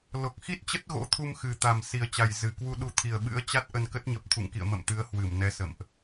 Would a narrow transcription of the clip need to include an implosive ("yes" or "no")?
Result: yes